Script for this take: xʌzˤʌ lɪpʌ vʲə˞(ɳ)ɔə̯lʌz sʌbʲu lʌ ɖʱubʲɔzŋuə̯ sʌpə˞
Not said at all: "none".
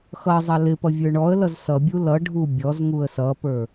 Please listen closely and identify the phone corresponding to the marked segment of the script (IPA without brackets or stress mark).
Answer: ɳ